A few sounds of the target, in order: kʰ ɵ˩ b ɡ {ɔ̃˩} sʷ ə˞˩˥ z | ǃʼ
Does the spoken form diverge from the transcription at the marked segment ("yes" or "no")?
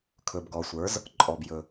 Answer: yes